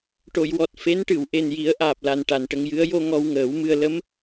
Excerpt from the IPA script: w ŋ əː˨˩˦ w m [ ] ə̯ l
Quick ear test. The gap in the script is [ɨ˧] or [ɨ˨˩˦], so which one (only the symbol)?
ɨ˧